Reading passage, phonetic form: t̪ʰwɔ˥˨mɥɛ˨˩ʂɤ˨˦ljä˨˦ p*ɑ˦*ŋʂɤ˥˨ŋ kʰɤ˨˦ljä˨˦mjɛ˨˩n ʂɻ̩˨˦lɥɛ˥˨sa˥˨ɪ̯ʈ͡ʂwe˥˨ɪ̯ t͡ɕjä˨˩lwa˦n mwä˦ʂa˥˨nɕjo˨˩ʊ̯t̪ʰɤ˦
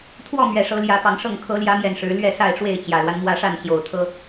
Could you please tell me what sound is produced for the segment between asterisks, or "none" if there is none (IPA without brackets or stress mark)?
ɑ˨˦